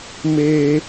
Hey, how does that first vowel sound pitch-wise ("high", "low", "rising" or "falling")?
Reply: high